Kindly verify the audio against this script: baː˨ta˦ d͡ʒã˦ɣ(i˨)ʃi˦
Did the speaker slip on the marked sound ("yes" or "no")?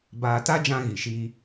no